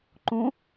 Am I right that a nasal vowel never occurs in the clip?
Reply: no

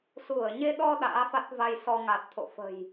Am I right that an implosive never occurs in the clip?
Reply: no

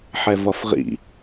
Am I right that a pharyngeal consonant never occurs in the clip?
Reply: no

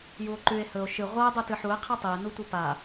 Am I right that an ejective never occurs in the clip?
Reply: yes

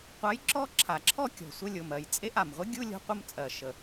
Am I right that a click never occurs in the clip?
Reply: no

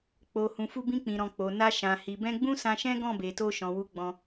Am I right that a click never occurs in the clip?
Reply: yes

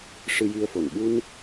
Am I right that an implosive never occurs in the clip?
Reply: no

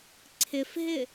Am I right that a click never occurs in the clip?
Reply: no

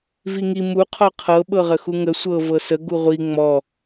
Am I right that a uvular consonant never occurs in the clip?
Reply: no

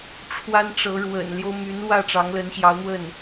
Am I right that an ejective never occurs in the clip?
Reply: yes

